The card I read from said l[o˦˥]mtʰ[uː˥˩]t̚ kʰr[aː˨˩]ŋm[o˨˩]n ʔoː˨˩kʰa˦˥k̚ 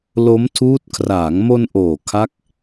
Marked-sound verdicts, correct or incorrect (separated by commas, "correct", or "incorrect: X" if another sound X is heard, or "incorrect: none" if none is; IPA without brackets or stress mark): correct, incorrect: uː˦˥, incorrect: aː˩˦, incorrect: o˧